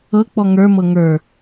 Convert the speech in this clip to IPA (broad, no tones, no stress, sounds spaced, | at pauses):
ɤ k͡p ɔ ŋ ə˞ m ɤ ŋ ə˞